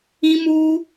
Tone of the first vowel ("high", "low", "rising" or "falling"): high